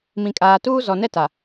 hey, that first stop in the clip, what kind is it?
ejective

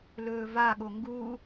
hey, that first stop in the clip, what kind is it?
implosive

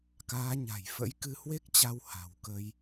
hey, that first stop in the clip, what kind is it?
plain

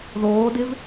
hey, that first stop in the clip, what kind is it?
plain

